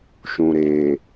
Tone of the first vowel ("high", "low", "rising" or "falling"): low